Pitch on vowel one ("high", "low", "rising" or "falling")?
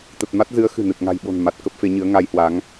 low